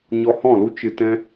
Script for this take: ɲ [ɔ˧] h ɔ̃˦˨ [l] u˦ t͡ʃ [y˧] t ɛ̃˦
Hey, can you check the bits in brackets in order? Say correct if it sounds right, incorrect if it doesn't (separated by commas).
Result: correct, correct, incorrect